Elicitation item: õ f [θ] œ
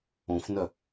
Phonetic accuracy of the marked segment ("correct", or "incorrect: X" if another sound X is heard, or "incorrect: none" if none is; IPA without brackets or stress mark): incorrect: n